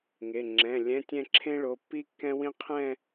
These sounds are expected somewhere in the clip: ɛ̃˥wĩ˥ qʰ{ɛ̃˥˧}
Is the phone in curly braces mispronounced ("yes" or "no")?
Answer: no